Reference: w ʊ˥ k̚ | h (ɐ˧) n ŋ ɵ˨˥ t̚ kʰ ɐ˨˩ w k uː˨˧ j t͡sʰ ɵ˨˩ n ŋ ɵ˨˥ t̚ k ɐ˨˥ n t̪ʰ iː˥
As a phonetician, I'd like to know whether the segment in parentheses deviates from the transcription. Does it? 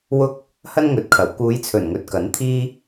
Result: yes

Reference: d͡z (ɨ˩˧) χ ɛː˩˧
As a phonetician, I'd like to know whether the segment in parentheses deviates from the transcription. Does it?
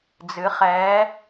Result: no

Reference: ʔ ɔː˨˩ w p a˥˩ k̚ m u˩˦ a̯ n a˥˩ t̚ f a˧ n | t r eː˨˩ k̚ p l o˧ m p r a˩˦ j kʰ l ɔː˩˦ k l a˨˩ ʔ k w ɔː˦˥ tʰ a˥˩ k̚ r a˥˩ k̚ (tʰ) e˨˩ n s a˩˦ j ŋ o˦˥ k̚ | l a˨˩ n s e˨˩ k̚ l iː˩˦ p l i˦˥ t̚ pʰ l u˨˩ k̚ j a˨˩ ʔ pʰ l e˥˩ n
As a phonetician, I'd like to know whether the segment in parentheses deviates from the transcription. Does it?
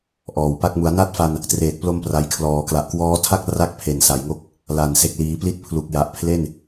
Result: yes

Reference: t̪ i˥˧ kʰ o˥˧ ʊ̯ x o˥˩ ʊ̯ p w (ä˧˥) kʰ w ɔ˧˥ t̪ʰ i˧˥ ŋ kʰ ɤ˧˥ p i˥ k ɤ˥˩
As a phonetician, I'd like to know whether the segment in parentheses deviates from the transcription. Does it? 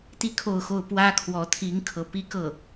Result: yes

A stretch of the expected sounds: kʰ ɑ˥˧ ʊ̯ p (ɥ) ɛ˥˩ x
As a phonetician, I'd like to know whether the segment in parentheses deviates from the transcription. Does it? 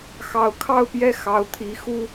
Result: yes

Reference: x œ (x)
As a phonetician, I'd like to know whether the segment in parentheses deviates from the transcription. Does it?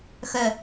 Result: yes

